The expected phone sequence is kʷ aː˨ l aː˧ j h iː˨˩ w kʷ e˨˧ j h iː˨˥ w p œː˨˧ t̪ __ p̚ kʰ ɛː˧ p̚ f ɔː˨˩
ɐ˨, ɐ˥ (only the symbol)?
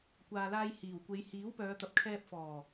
ɐ˨